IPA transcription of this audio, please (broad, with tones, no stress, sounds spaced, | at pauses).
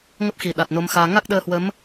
ŋ ə˦˥ p̚ x i˨˩ ɗ a˨˩ t̚ n o˨˦ m x aː˧ ŋ a˦˥ k̚ ɗ əː˧ h w ə˨˦ m